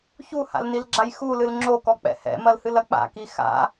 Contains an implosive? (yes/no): no